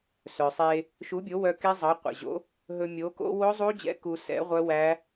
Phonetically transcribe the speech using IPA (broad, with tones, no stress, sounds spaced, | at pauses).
s œ˩ sˤ e˧ | ʃ u˨˥ bʲ o˨˥ w œ˧ k e˦˥ zˤ ɑ˨˥ qʷ ɛ̰˩ ʑ o̰˨˥ | ɦ ɵ˧ mʲ o˨˥ k o̰˦˥ w o˦˥ zˤ u˦˥ d͡ʑ ɛ̰˨˥ k u˧ s ɛ̰˨˥ ʁʷ œ˦˥ w æ˦˥